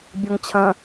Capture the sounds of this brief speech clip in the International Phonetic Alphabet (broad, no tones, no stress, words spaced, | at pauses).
bʲɔŋt͡ɕʰɐ̃